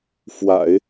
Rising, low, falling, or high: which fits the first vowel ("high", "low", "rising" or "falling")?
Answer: low